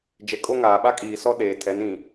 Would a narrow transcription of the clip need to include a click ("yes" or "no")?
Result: no